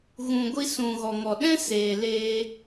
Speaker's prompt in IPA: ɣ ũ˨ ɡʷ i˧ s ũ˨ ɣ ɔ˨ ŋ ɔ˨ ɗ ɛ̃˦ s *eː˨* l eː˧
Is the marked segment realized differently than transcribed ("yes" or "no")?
no